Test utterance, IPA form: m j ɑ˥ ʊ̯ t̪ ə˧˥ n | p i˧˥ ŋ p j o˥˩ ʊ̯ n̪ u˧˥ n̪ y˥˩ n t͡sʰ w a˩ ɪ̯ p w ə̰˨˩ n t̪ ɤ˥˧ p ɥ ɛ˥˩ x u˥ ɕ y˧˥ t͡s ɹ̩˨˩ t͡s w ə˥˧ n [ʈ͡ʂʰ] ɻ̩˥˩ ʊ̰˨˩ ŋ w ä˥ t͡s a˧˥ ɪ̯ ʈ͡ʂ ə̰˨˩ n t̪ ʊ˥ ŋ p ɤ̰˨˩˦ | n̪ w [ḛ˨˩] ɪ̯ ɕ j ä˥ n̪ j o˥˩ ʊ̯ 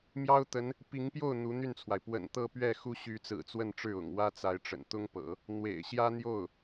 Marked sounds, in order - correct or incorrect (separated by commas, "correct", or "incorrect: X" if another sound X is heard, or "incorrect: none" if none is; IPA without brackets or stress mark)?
incorrect: ʈ͡ʂ, correct